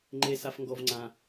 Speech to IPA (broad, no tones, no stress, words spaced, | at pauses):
ŋ͡ǃe safŋɡɔvŋ͡ǀã